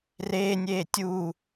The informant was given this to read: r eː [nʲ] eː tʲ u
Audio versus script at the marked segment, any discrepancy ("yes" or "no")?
no